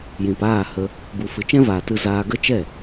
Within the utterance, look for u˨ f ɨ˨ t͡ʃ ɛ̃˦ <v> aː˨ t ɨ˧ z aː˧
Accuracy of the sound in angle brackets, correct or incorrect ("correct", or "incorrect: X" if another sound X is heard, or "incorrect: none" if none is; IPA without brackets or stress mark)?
correct